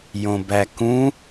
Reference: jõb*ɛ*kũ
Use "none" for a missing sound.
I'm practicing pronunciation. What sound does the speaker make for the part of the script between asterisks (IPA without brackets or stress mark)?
æ